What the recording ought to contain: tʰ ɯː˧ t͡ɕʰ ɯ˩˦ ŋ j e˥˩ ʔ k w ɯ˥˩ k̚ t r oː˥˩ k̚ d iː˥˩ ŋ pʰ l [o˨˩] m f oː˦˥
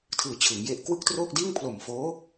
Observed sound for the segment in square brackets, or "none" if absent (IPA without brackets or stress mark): o˨˩